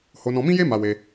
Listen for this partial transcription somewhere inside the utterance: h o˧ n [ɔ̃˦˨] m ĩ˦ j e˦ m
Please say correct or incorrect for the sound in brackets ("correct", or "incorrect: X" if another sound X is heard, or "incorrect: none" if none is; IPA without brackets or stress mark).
incorrect: ɔ̃˧